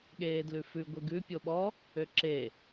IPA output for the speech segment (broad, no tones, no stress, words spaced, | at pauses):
ɠeːdlʉfʉ ɡʷeɡʉ pʲoɓɔ | øǁe